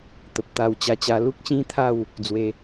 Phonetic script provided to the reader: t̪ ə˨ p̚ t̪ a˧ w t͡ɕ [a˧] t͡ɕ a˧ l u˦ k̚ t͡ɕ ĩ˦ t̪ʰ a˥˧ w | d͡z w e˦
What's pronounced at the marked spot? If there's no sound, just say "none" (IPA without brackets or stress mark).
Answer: a˧